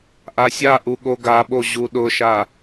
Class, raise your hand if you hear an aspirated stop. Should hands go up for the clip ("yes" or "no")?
no